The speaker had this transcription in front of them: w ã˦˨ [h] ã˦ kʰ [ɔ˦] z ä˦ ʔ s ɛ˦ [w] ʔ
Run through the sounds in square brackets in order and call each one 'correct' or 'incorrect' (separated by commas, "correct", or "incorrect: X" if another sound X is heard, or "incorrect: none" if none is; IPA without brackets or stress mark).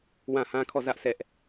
correct, incorrect: ɔ˦˨, incorrect: none